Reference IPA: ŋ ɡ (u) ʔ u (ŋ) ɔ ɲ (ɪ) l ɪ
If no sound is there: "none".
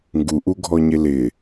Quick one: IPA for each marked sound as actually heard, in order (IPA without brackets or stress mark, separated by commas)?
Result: u, ɡʱ, ɪ